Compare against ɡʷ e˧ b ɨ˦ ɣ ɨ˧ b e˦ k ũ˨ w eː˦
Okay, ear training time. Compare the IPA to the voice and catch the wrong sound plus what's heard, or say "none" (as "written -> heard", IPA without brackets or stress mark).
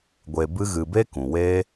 none